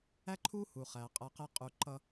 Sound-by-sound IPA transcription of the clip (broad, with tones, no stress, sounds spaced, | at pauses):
æ˥ ǃʰ u˥ h u˩ χ æ˩ qʼ ʌ˧ q ɛ˥ qʼ u˧ ǃ ʌ˥